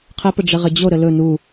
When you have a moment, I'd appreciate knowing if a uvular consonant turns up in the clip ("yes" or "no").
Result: yes